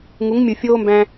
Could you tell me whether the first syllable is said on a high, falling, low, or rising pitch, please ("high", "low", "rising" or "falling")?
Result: rising